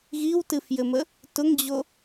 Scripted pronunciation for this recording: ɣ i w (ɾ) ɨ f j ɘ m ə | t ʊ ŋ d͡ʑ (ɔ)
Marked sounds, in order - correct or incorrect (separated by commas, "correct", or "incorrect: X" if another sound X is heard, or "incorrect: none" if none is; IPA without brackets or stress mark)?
incorrect: t, incorrect: o